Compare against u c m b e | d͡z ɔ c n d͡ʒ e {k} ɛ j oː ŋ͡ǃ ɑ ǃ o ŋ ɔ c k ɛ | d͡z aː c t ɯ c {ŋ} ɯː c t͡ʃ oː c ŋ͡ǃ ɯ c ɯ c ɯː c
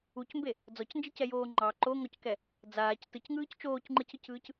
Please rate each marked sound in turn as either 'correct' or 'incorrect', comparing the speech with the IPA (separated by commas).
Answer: incorrect, correct